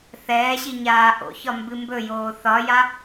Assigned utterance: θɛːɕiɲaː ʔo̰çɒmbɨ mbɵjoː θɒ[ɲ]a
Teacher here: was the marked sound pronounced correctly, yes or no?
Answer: no